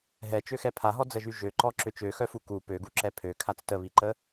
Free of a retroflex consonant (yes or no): yes